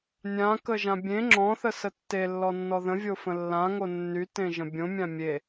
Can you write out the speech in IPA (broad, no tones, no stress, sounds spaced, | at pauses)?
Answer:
nʲ ã k ə ʒ ã bʲ ẽ ŋ͡ǁ ɔ̃ θ ə s ə tː e lː ɔ nː ɔ ð ə̃ vʲ o f ə̃ lː ã ŋ o nː y t ẽ ʒ ə̃ bʲ õ mʲ ã mʲ e